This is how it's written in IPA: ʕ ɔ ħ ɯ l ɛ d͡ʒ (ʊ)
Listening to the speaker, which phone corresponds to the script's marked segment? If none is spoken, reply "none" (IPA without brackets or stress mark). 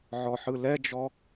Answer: ɔ